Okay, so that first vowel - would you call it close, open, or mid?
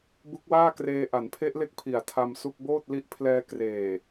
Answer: close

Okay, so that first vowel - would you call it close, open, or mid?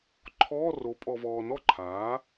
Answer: mid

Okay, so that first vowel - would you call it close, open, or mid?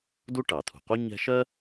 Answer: close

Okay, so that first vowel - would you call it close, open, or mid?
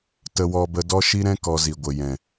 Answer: mid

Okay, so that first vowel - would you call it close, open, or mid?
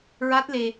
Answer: open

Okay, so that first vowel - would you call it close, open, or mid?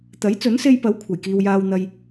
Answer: open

